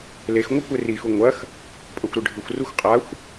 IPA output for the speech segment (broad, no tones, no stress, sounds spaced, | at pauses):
l e x ŋʷ ɐ kʷ e r i x u ŋʷ ɐ x | pʼ ɐ xʷ ɾ ʉ ɖʱ ɨ xʷ r u xʷ qʼ a xʷ